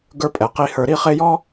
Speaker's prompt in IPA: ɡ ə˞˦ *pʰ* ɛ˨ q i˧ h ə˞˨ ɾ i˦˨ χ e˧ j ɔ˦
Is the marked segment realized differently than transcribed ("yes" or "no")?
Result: yes